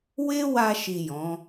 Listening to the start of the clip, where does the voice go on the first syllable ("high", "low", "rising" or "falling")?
high